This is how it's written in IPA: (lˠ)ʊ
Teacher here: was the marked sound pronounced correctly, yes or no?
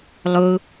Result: yes